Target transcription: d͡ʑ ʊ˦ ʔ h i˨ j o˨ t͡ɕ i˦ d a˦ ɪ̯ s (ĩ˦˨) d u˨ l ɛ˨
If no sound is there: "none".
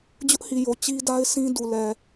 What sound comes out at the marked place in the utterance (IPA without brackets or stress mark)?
ĩ˦